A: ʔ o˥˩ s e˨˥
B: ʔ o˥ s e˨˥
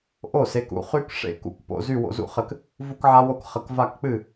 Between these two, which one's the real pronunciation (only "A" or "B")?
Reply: A